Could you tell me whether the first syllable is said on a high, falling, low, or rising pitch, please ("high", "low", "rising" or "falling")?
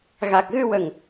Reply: low